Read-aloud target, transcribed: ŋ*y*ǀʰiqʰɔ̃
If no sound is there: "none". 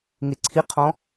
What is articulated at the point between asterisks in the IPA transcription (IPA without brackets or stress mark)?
e